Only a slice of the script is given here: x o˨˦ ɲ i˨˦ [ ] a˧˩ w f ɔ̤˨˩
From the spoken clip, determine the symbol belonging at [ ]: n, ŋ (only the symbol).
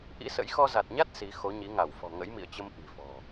ŋ